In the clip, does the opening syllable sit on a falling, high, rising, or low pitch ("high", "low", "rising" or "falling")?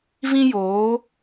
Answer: high